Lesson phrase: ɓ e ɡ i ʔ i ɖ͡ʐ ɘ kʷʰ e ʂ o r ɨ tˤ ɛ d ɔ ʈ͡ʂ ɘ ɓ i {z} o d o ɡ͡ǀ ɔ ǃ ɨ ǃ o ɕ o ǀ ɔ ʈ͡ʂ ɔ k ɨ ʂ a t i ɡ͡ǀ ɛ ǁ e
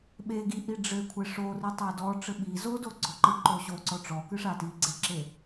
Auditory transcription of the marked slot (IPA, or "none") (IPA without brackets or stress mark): z